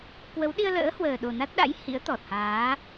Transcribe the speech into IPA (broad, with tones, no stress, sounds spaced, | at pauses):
k w ə˨˦ w ɗ i˧ ə̯ l ə̰ː˧˥ h w əː˨˩ ɗ o˨˩ n a˦˥ t̚ ɗ a̰˧˥ j h ḭ˧˥ ə̯ t̪ ɔ˨˩ t̚ h aː˨˦